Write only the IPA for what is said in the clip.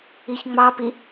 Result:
i ç ŋ͡m ɑ p i

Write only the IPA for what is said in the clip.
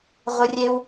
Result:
ʁʷ ɨ˧ rʲ e˦ w

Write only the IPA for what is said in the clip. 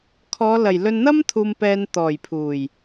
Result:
kʰ ɔː˨˧ l ɐ˨˩ j l ɵ˧ n n̪ ɐ˥ m t̪ʰ uː˨ m p ɛː˨ n t̪ ɔː˨˩ j pʰ uː˨˩ j

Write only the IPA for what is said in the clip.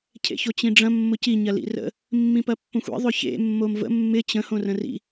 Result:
cʰ ḛ ç o t͡ɕ ĩ ɖ͡ʐ ɐ̃ mː ʊ c i ɲ ɐ l ḭ r ə̰ | mː ĩ p ɐ pː õ xʷ ḭ ðˤ ʏ ç ḛ mː o m v ə̰ mː ɪ t͡ɕ ə̃ h õ r ə̃ r ḭ

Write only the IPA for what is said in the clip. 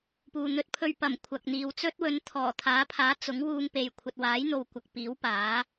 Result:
p uː˨ n̪ ɵ˧ t̚ pʰ ɵ˧ ɥ p ɐ˨˩ m kʷʰ ɐ˨ k̚ n̪ iː˨ w t͡s ɵ˥ t̚ w ɵ˨˧ n t̪ʰ ɔː˨˩ t̪ʰ aː˨˥ pʰ aː˨˥ t͡s ʊ˨˥ ŋ w uː˧ ŋ p e˨ j kʷʰ ɐ˨ t̚ w aː˨˥ j n̪ o˨ w kʷ ɐ˨ k̚ p iː˨˥ w p aː˨˥

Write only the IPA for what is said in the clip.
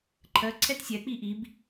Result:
ǃʰ ɜ ǀʰ ɛ t sʲ ɛ k͡p i ʔ i b

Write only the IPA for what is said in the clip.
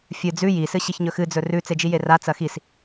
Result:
fʲ ɨ d͡z ʉ j i s ɨ ɕ i ç ɲ ɵ x ɨ d͡z ɵ r ʉ t͡s e d͡ʒ i j e r a t͡s ɐ x i s

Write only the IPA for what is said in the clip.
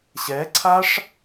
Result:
ɕ ɛ ǀʰ a ʂ

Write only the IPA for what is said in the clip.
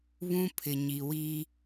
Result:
β ũ˦ pʰ ɪ˨ ɲ i˨ w i˦

